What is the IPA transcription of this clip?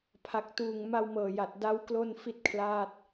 pʰ a˨˩ k̚ t uː˨˩ ŋ m a˧ w m ɤː˨˩ j a˨˩ t̚ d a˦˥ w k l o˥˩ n f i˥˩ t̚ kʰ l aː˥˩ t̚

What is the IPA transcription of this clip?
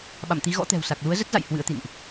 ɓ a̰˧˨ m t̪ i˨˦ ɣ ɔ̰˧˥ t̪ ɛ̤˨˩ w s a˨˩ k̚ l u˨˦ ə̯ z ə˦˥ t̚ z a̰˧˨ j h w ɨ̰˧˥ ə̯ t̪ ḭ˧˨ n ʔ

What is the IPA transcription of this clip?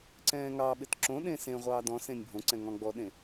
ǀ ɛ̃ː ŋ ɑ ɓ ɪ t ǁ õ ɗ ẽ s ẽ ʁʷ ɑː d ɔ̃ s ẽ nʲ bʱ õ ǀ ɛ̃ ŋ ɔ̃ ɡ͡b ɔ ɗ ẽ

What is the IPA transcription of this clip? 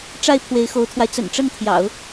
ʈ͡ʂ a˥˩ ɪ̯ pʰ w e˧˥ ɪ̯ x o˧˥ ʊ̯ t̪ʰ w a˧ ɪ̯ t͡s ə̰˨˩ n ʈ͡ʂ ə˥˩ n t̪ʰ j ɑ̰˨˩˦ ʊ̯

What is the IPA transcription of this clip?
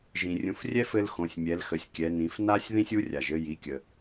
ʒ ĩ˩ rʲ ũ˩˧ f rʲ ɛ˥ f ɘ˧ l x õ˩˧ sʲ mʲ ɛ˩˧ l x ə˩˧ sʲ kʲ ɛ˩˧ n ĩ˩˧ f n a˥ sʲ ð ĩ˥ sʲ u˧˥ rʲ a˩ ʒ ɘ˧ j i˩˧ kʲ ə˩

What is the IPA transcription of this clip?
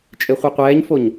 t͡ʃʼ e χʷ ɯ qʷ ɛː ɲ f o ɲ

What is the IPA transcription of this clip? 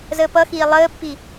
z əː p ʌ x iː lˠ əː pː i

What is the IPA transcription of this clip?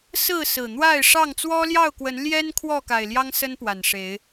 s ɹ̩˥˨ s ɹ̩˨˩ n̪ w a˥˨ ɪ̯ ʂ ɑ˥˨ ŋ t͡s w ɔ˦ l j ɑ˥˨ ʊ̯ k w ə˨˦ n l j ɛ˦ n kʰ w ɔ˥˨ k a˨˩ ɪ̯ l j ɑ˦ ŋ s ə˦ n p w a˨˩ n ʂ e˨˦ ɪ̯

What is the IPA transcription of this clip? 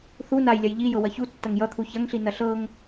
θ u n a j lʲ ɐ j ʎ i j ɤ w ɐ ç u tː ɐ ŋ j ʌ t̪ʰ u ç ɐ ŋ ɬ i n ɐ ɬ ɤ ŋ

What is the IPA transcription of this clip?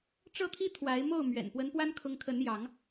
ʈ͡ʂ ɤ˦ t̪ʰ i˦ t̪ʰ w a˨˦ ɪ̯ m o˥˨ ʊ̯ m ɥ ɛ̰˨˩ n p w ə˨˦ n p w a˦ n kʰ ʊ˨˦ ŋ kʰ ə˨˦ n j ɑ˨˦ ŋ

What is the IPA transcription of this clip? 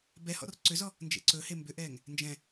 b ɛ h ɔ̰ r ǀ ʏ z ɔ | n d͡ʒ ḛ ǀ ɵ h e m b ʏ ʔ ɛː ŋ | n d͡ʒ ɛ̃

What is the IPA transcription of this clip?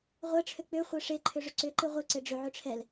ʁʷ ɛ ʈ͡ʂʰ ø k͡p ʏ χʷ e ʂ e ǃʰ ʏ ʐ ʏ ǀ ʏ ǃ ɨ ʁʷ ɨ ǀ e ɖ͡ʐ ʏ ʕ ʏ ʈ͡ʂʰ ɛ l

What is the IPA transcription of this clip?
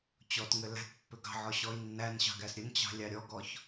t͡ɕ ɔ t ŋ ɘ l æ̤ t pː ʏ ɡ ɑ̤ ʕ ɔ ɕ ɔ i̯ nː æ n ɕ ɑ̤ ɡ æ s ɾʲ ɘ n t͡ɕ ɑ̤ lʲ ɑ ɾʲ ɔ ɡ ɔ ç

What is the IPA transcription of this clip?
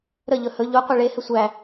ɾ ə ʎ ɵ h ɵ ʎ u qʷ ɨ ɭ e h ɘ sʷ æ

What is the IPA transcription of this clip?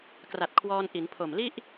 k r a˨˩ t̚ kʰ w ɔː˧ n ʔ i˩˦ n pʰ o˨˩ m l i˥˩ ʔ

